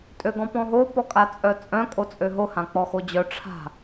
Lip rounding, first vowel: rounded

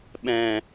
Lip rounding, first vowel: unrounded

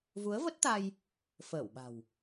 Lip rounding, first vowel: rounded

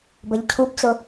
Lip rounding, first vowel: unrounded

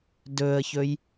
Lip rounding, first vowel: rounded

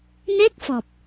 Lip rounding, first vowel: unrounded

